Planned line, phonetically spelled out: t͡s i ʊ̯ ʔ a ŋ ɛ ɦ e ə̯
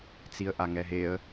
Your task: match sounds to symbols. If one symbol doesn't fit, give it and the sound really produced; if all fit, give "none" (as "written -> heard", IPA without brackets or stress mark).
ʊ̯ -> ə̯